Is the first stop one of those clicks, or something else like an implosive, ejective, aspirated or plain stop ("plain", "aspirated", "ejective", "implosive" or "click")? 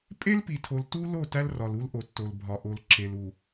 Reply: ejective